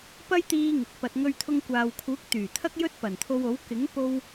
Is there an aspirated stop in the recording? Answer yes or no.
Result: yes